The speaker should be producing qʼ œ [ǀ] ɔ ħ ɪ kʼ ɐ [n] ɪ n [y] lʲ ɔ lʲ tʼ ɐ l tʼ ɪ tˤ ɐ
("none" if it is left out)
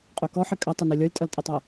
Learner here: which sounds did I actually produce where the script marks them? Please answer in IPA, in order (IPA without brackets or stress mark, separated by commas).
k, tˤ, ø